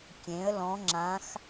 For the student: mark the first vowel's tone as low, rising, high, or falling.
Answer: rising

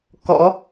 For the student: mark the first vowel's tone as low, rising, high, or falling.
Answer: rising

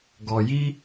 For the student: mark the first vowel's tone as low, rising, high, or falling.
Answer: low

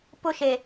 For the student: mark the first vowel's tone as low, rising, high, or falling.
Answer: high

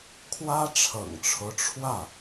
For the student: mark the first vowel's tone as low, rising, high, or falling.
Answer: high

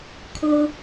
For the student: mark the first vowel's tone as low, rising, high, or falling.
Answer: low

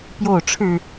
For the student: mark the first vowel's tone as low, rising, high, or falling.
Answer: falling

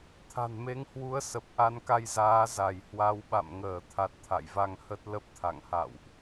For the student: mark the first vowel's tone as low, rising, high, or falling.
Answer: low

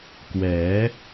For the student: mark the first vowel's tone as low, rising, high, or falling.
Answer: rising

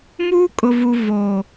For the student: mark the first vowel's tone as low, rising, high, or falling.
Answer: high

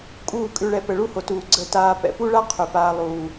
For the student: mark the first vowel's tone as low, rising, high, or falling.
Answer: falling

